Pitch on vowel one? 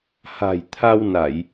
low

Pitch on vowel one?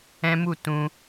high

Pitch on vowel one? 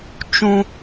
high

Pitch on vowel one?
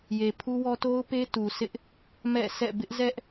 low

